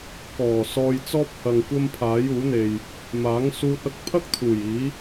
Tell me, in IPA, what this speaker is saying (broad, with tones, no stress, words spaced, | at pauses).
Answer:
kɔː˨˩ sɔː˧jt͡sɔː˥p̚hɐ˨ŋkʷɐ˥m pʰaː˨˥juː˨˥n̪e˨j | maː˨˥ŋsuː˧t̚ ɐ˧k̚pʰɐ˥k̚ t̪ʰuː˨˩jiː˨˥